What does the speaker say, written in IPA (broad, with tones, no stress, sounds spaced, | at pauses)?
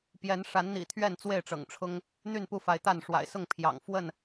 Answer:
p j ɛ˨˦ n ʂ a˨˦ n n̪ ḭ˨˩ t̪ʰ ɥ ɛ˥˨ n t͡s w e˥˨ ɪ̯ ʈ͡ʂ ɤ̰˨˩ ŋ ʈ͡ʂʰ ʊ˦ ŋ | n̪ y˥˨ n p u˥˨ f a˨˦ ɪ̯ t̪ a˥˨ n ʂ w a̰˨˩ ɪ̯ s ʊ˥˨ ŋ pʰ j ɑ̰˨˩ ŋ f w ə˥˨ n